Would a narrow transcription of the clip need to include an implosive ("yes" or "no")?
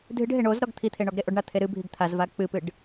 no